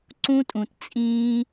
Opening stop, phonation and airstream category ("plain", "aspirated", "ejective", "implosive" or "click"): click